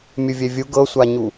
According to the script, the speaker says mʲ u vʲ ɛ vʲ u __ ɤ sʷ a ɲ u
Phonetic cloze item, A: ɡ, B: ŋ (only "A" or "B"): A